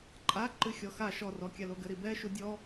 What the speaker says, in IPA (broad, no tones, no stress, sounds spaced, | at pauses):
ǃʼ a ǃ ɨ xʲ ɔ x a ʃ ɔ r ɔ kʲ a l o ɡ ɘ ɾ i b ɛ ʃ u dʲ ɔ